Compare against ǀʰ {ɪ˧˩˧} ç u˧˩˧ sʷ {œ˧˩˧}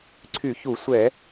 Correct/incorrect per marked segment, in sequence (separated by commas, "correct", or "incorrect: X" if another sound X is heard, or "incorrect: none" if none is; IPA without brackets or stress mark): incorrect: y˧˩˧, incorrect: ɛ˧˩˧